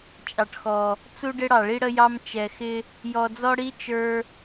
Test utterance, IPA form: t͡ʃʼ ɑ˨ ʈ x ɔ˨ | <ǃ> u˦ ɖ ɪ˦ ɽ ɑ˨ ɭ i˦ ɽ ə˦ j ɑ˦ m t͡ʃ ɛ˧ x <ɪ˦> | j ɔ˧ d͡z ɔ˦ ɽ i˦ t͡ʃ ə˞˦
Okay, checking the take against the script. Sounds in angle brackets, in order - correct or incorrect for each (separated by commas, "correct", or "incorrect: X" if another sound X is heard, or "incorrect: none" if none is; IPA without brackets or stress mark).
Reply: incorrect: t͡s, correct